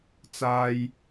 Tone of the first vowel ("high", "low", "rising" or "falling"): low